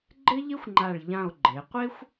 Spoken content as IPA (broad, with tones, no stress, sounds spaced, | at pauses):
ɡ͡ǃ ɪ˥ ʎ ɪ˥ xʷ ŋ͡ǃ a˧˩ ɭ ʎ ã˧˩ o̯ ɡ͡ǃ e˩˧ qʷ e˥ xʷ